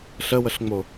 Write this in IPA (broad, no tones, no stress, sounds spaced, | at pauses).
ɬ ə w ə ɬ ŋ͡m o